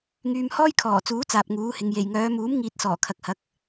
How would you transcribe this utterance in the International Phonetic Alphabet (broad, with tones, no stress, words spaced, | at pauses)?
ŋyː˧mhɔː˥jkʰɔː˨˩t͡suː˨˥ t͡saː˨p̚ŋuː˨˥hɪ˨˧ŋ je˨˩jŋœː˨˧ muː˨˥mŋiː˨t̚sɔː˨˩ kʰɐ˨k̚hɐ˨˥k̚